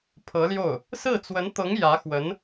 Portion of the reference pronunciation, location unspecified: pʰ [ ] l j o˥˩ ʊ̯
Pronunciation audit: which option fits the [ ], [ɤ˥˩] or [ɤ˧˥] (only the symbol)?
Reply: ɤ˧˥